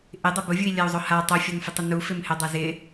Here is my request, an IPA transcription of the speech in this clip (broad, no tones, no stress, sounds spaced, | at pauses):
ʔ ɪ dˤ ɪ b ʊ vʲ u i̯ lʲ a u̯ zˤ ʊ h a tˤ u fʲ ɔ n f ɪ tˤ ʊ n u f ɪ m h ɪ dˤ ɛ z ɪ